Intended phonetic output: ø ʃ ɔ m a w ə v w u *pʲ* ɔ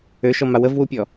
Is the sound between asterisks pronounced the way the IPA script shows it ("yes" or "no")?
yes